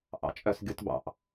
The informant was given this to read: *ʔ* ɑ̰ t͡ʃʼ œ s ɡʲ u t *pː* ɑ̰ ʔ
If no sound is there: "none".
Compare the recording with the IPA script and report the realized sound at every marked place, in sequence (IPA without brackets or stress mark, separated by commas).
ʔ, b